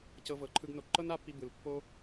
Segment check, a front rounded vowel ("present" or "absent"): absent